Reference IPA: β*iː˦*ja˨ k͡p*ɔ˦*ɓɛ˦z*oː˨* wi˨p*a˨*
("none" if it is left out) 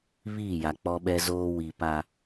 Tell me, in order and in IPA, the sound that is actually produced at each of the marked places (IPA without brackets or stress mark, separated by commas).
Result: iː˦˨, ɔ˦, oː˦, a˨